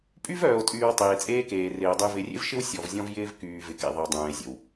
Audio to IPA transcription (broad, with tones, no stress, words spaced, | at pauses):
pʼy˦vœː˨o̯tʼyː˨w tˤeː˨t͡sʼeː˦ keː˨rɪː˨o̯ dˤy˨vɪ˨rʲḛ˦vʃɪ˦w sʲɔ˨vzʲɔ̃˦vjɪː˦v kyː˨vɪ˨kḛ˨ðˤə˨w dˤœ̃ː˨e̯zʲə̰˨w